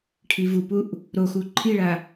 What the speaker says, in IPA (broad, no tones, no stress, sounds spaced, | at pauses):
ʈʰ i v u p u ʔ | ɾ o x u ǃʰ i ɭ a